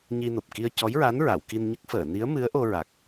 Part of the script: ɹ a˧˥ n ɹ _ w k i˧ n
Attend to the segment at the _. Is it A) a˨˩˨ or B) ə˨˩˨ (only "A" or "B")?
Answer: A